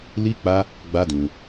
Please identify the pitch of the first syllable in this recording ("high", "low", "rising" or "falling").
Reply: high